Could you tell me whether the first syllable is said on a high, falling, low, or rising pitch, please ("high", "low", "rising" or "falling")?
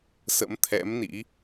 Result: rising